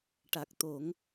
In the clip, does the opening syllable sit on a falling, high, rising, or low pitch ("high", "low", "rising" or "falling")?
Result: low